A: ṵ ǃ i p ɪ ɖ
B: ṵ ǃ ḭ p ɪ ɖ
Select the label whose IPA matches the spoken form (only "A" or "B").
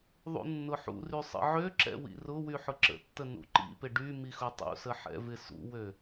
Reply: B